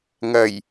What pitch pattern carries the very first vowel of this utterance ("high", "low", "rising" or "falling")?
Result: low